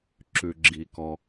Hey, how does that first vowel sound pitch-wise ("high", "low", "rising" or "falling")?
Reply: low